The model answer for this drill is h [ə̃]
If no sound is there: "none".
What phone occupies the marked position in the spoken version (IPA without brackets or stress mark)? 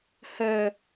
ə